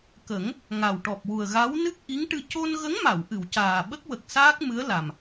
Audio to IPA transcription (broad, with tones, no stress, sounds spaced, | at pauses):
k ə˨˩˦ ŋ | ŋ a˨˩ w ʈ ɔ˨˩ p̚ w u˨˩ ə̯ ɣ a˧˥ w n ɨ˦˥ k̚ ʔ i˧˥ ŋ ʈ ɨ˧ c o˧ n ɣ ə˧˥ ŋ m a˨˩˨ w ʔ ɨ˨˩˨ w c aː˨˩ ɓ ə˦˥ k̚ w ə˨˩ k̚ s aː˦˥ k̚ m ɨ˧˥ ə̯ l a˨˩ m